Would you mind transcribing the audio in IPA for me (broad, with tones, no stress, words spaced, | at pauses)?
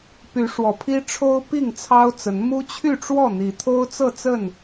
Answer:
py˨˦ʂwɔ˨˩pʰi˦ ʈ͡ʂʰo˦ʊ̯pi˥˨ŋ t͡sʰɑ˦ʊ̯t͡sə˨˦n mu˦t͡ɕʰy˥˨ʈ͡ʂwɔ˥˨ n̪i˨˦t̪ʰo˦ʊ̯ t͡sɤ˥˨t͡sə˥˨n